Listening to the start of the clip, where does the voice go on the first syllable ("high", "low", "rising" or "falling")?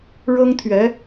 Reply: high